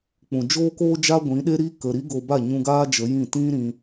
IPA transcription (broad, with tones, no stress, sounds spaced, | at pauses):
k͡p ũ˨ d͡ʒ oː˦ k oː˦ d͡ʒ a˦ ɡʷ ĩ˨˦ ɗ e˦ ɾ i˦ k ə˧ ɾ i˦ ɡ o˧ b a˦˨ ɲ ũ˧ ɡ aː˦ d͡ʒ ə˨˦ j ĩ˦˨ t ĩ˦ ɾ ĩ˧